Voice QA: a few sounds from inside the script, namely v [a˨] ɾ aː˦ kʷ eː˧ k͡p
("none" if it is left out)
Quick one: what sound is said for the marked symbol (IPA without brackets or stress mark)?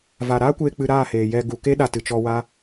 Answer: aː˨